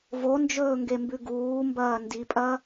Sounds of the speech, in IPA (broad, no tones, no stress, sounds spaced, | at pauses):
v o n d͡ʒ ɵː ŋ ɡ e m b ʉ ɡ uː m b ɐː n d i pʼ ɐ